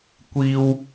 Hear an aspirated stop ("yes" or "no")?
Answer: no